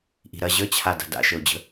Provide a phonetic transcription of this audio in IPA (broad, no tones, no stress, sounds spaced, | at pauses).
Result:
ʔ i̤ ɾ ɐ ʑ ə t͡ɕʰ a d a̤ d a̰ ʃ ə ʊ̯ d͡ʑ ə̤